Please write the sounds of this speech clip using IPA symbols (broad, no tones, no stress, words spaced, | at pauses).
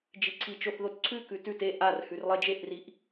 d͡ʒiǀʰit͡ʃoθ ðotǀʰʉkʉ tʉt e ʔar hʉrlˠed͡ʒeʔriʔ